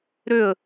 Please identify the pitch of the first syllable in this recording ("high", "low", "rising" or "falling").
falling